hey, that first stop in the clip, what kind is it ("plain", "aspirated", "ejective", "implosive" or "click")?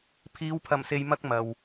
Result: aspirated